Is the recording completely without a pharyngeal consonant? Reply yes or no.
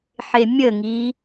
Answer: no